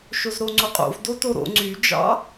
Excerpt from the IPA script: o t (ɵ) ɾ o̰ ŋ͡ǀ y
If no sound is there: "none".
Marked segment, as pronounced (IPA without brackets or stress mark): o